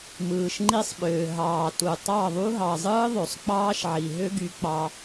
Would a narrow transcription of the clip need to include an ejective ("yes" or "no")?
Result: no